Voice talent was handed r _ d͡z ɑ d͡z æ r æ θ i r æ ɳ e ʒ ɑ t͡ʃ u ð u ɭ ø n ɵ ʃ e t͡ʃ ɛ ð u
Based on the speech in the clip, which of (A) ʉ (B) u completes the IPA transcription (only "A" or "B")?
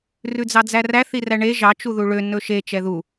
A